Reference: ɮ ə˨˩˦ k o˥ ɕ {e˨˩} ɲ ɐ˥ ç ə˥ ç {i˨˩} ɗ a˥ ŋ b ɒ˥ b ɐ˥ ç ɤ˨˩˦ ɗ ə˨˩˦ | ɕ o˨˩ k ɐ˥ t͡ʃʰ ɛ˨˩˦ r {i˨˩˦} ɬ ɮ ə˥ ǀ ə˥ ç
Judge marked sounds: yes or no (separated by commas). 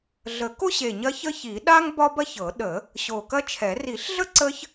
yes, no, yes